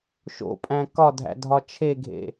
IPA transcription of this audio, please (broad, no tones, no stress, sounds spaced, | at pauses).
ʃ o̰ pʼ æ̃ k ɒ dʱ æ̰ dʱ ɒ t͡ʃʰ e ɡʱ ḛ